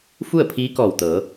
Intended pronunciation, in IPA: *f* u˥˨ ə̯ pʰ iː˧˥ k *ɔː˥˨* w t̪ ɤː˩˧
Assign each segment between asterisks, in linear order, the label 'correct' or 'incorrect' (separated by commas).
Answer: correct, incorrect